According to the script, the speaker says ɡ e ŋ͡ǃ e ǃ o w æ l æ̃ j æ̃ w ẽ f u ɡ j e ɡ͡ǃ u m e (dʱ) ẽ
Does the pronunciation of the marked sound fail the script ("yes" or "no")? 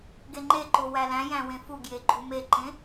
yes